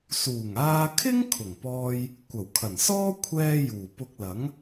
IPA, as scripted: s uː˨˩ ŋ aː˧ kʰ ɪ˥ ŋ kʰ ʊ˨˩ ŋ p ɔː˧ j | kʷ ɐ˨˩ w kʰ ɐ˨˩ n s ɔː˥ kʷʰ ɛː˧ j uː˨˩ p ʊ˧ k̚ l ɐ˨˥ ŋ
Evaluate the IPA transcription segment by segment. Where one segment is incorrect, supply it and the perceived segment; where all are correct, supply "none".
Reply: none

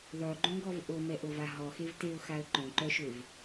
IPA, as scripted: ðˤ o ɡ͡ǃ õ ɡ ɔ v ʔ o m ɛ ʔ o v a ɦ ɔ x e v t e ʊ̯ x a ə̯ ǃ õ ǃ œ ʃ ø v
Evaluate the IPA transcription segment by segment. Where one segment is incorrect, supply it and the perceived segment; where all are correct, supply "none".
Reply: none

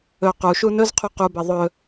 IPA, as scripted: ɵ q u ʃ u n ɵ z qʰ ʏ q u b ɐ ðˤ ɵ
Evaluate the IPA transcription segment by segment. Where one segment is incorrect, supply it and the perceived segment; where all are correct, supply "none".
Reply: ʏ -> u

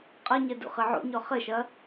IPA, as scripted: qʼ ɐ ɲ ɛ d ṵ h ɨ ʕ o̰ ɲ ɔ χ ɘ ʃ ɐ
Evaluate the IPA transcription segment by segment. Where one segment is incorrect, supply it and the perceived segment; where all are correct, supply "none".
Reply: h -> χ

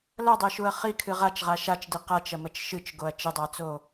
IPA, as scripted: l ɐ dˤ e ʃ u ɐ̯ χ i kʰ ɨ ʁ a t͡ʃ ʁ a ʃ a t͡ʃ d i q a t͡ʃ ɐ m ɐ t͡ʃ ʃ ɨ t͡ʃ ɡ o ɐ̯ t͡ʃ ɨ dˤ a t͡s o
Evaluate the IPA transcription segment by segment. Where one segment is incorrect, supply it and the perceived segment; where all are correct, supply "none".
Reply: none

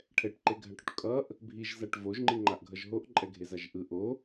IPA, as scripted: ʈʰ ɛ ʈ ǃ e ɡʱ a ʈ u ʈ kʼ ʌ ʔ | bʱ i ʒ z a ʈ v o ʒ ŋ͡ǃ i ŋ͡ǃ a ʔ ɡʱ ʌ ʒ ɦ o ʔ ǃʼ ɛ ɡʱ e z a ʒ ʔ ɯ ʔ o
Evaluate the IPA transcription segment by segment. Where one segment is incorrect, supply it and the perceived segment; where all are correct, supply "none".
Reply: none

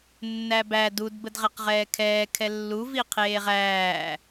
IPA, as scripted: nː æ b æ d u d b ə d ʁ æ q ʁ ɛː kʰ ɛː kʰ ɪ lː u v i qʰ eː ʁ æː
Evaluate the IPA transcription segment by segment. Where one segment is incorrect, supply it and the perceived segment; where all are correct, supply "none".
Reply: ɪ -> ɛ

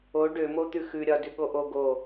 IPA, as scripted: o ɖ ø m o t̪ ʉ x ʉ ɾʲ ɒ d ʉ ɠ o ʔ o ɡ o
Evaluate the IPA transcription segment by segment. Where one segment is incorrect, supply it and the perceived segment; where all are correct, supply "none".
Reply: none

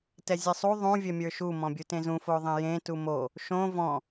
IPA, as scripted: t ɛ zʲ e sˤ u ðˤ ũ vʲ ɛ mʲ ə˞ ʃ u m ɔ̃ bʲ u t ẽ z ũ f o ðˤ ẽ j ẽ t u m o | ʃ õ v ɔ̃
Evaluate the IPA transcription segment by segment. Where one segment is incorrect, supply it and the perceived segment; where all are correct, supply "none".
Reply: none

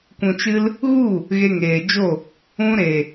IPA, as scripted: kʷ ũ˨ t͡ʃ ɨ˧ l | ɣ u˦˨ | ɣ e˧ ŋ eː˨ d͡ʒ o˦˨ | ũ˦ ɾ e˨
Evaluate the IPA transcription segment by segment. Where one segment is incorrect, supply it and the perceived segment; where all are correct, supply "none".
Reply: none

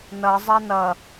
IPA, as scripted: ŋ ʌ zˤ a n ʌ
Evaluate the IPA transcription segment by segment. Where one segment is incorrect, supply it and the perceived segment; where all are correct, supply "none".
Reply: ŋ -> n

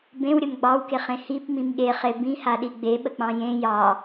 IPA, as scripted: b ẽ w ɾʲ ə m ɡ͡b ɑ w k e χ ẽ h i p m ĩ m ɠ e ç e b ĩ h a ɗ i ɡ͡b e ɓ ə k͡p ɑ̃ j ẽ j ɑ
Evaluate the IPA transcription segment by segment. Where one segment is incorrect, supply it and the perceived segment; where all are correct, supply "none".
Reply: ç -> χ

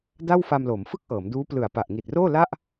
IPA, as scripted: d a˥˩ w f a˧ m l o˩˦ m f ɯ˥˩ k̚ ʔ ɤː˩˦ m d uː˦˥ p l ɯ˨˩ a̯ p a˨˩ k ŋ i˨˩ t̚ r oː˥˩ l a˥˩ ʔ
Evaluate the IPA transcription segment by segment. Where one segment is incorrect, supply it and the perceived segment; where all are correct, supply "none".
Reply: k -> ʔ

